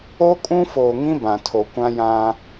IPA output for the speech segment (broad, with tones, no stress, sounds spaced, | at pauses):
o˦ kʼ ũ˦ f oː˨ ŋ ĩ˦ b ã˨ tʰ o˨ kʷ ã˦ j ã˦